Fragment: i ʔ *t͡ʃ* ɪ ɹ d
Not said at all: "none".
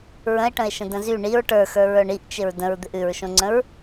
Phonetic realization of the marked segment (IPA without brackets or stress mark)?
t͡ʃ